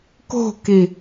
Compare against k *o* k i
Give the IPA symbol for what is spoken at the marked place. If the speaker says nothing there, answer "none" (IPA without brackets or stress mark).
o̤